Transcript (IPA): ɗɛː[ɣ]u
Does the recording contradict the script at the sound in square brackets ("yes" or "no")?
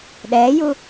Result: yes